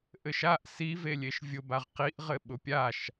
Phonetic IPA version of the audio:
ʔɘʃaʔ sivelʲeʃ vʲʊbaʁ qiʔʁɘ ɓʊpʲaʃ

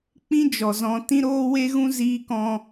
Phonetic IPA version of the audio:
k͡pĩ˦d͡ʒɔ˨ zɔ̃˧ tĩ˦ɾoː˦we˦ɣũ˦ ziː˧kɔ̃˧

